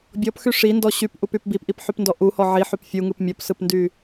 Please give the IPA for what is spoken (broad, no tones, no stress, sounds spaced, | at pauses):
bʲ ɔ p x y ʂ i n d ɔ ɕ y p ʔ u p y p b i p ʔ i p ħ y p n d ɔ ʔ u h ɔ ʕ i ħ y p fʲ u ŋ ɯ p mʲ ɔ p s ɯ p n d y